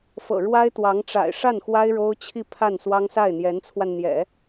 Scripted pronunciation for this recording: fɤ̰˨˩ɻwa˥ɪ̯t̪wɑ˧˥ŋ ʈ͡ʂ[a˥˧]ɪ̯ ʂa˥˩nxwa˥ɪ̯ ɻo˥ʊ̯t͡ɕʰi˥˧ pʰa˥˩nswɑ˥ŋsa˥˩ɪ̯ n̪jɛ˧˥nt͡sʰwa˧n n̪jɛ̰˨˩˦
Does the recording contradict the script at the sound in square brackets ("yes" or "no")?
yes